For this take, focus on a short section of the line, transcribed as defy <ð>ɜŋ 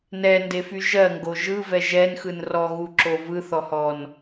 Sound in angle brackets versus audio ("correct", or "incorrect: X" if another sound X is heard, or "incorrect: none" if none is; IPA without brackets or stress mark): incorrect: ʒ